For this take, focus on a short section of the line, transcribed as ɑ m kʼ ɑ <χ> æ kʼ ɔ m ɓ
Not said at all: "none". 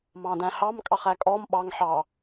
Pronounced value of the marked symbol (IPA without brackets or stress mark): χ